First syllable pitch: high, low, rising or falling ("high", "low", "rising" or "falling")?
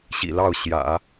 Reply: low